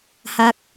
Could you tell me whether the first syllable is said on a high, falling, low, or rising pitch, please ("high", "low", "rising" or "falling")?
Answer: falling